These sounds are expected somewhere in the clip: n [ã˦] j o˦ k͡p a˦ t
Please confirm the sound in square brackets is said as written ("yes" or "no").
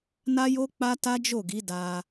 no